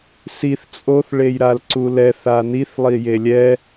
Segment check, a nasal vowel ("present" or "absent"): absent